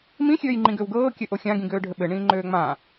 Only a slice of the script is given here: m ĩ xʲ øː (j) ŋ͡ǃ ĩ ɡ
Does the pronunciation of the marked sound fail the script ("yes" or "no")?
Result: no